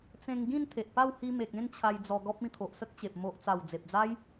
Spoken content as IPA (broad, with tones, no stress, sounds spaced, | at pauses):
t͡s ẽ˧ ŋ ɡ ĩ˥˧ n t̪ʰ e˨ ʔ p a˥˧ w h i˧ m e˨ k̚ ẽ˥˧ n t͡ɕʰ a˧ j d͡z ɔ˧ ɡ ɔ˦ p̚ ĩ˧ t̪ʰ o˨ ʔ s ə˦ k̚ t͡ɕ e˨ p̚ m o˨ ʔ t͡s a˨˩ w d͡z e˨ p̚ d͡z a˦ j